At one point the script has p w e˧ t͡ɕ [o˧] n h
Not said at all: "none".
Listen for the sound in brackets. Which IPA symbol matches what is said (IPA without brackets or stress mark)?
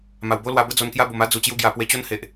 o˦